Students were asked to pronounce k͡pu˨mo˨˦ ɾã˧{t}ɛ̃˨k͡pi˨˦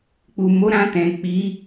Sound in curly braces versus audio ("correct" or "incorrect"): correct